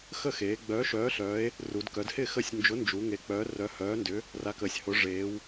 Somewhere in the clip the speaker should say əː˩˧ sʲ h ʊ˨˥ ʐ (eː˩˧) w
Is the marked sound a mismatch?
no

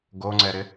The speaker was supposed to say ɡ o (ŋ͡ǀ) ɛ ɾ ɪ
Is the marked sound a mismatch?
no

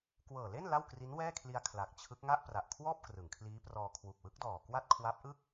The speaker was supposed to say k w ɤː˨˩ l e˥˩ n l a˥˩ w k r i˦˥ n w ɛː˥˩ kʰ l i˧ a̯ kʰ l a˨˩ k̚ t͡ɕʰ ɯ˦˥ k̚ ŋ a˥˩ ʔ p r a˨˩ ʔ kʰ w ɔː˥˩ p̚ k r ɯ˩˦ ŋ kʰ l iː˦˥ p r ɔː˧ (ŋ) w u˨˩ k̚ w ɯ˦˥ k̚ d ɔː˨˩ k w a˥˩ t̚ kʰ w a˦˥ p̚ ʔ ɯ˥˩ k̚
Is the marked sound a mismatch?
yes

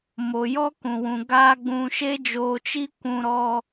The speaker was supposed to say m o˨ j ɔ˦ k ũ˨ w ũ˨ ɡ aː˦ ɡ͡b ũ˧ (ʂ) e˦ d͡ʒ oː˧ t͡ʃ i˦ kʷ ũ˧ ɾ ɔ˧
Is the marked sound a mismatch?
yes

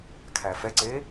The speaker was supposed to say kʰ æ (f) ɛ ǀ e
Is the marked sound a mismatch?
no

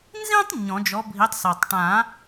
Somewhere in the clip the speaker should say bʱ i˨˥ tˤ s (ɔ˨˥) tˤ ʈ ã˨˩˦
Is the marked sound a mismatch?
yes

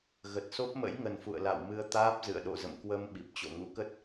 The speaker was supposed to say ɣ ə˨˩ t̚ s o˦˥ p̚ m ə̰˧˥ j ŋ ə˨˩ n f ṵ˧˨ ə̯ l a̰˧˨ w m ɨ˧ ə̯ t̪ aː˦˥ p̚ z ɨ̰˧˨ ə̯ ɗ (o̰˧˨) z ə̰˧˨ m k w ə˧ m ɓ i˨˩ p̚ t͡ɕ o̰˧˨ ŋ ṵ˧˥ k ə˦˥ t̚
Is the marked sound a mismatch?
no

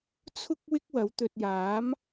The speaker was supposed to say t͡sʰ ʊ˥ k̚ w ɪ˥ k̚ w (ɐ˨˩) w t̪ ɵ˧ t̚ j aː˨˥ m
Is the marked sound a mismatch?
yes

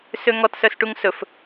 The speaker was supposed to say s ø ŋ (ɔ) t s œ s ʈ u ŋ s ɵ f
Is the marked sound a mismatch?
no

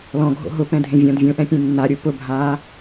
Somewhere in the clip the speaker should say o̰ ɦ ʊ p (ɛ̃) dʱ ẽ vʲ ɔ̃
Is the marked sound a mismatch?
no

